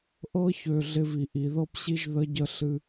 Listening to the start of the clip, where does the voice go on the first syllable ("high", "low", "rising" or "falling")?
high